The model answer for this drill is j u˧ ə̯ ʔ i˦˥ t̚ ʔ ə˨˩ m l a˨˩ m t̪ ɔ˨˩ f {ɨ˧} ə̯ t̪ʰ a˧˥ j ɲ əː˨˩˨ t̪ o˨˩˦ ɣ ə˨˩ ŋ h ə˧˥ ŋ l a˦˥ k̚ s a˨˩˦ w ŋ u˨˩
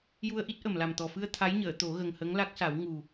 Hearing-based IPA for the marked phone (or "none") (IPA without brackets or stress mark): ɨ˧